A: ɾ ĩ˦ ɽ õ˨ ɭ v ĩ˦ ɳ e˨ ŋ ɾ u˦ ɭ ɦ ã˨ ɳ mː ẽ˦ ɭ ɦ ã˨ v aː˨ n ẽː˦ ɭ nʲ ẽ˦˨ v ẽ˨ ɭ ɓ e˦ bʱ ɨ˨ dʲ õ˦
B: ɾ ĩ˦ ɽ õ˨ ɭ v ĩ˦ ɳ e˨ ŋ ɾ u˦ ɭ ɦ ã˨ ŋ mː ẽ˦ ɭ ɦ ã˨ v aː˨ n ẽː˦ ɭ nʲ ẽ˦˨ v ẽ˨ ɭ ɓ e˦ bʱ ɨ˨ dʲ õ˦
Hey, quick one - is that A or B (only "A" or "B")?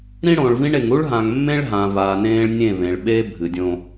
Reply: B